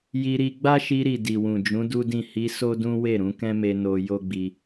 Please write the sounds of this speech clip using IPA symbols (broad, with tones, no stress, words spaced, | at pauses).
ji˧ɾi˧ ɡ͡ba˦ʃi˧ɾi˨ di˨wũ˨d͡ʒũ˨˦ du˦dĩ˦˨ hi˧ so˦dũ˦we˦˨ɾũ˨˦ kɛ̃˦me˧ no˧ jo˦ɡ͡bi˧